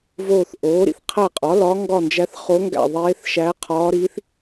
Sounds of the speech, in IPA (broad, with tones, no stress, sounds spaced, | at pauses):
v oː˦˨ θ ʔ oː˩˥ ɾ ḭ˩˥ θ qʰ æ˦˨ qʼ ɒ˩˥ l ɒ˧˥ ŋ ɡ ɒ˦˨ n d͡ʒ æ˧˥ θ χ o˧˥ ŋ ɡ æ̰˦˨ ðˤ eː˧˥ θ ʃ æ˧˥ qʰ ɒː˧˥ ɾ i˧˥ θ